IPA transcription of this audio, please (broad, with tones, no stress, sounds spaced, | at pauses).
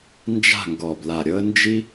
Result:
n d͡ʒ a̤˦˨ ŋ ɡ ɔ˨˩ b l a˨˩ ɾʲ ɤ˦ ə̯ n d͡ʒ i˦